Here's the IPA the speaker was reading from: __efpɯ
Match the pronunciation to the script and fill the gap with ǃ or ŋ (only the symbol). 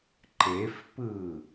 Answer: ǃ